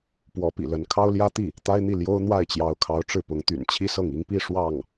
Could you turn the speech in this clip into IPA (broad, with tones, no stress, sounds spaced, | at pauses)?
p w ɔ˧˥ p ḭ˨˩ l ə˧˥ n kʰ ɑ˥ ʊ̯ l j ä˥ t̪ i˥˩ | t̪ a˥ ɪ̯ n̪ i˥˩ l j o˥ ʊ̯ n̪ w a˥˩ ɪ̯ t͡ɕ j ɑ˧˥ ʊ̯ kʰ ɑ˧˥ ʊ̯ ʈ͡ʂ ɻ̩˥˩ p ʊ˧˥ ŋ t̪ y̰˨˩ n t͡ɕʰ i˥ s ɤ˥˩ ŋ i˥ ŋ p i˥˧ ʂ w ɑ˥˩ ŋ